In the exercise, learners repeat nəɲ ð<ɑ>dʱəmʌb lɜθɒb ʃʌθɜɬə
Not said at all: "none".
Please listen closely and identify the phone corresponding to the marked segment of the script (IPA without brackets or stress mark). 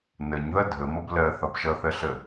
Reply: ʌ